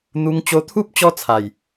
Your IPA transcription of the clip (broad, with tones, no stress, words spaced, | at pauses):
n̪u˧ŋt͡ɕo˧t̪ʰu˦p̚ t͡ɕɔ˦t͡sʰa˨˩j